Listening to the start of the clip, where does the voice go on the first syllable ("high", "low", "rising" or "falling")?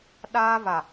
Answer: high